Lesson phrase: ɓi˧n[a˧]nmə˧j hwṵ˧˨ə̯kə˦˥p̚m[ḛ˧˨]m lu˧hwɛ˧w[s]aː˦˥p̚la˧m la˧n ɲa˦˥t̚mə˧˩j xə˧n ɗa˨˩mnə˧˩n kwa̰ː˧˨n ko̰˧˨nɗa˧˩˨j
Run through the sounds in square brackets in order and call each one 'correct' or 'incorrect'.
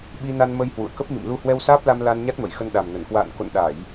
correct, incorrect: ḭ˧˨, correct

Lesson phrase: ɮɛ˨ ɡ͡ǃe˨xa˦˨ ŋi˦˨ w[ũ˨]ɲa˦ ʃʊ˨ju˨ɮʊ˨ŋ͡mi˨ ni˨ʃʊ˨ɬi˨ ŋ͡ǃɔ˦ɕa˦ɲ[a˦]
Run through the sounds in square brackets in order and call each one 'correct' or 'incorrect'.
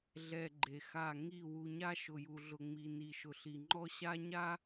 incorrect: u˨, correct

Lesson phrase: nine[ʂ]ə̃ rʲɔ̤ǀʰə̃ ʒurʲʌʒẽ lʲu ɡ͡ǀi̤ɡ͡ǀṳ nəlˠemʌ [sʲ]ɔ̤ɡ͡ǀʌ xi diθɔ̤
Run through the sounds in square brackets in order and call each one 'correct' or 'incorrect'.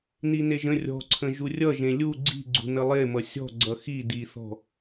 incorrect: ʒ, correct

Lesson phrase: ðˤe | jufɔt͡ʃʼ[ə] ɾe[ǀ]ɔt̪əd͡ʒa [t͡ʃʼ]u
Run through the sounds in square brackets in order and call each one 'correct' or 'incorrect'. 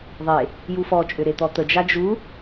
incorrect: ʏ, incorrect: t̪, incorrect: d͡ʒ

